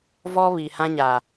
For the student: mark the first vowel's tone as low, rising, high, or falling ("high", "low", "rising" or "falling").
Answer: high